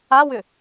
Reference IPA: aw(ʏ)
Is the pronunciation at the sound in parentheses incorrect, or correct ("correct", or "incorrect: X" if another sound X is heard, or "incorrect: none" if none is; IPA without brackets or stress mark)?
correct